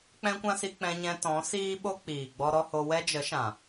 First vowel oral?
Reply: no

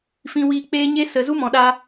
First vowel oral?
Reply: no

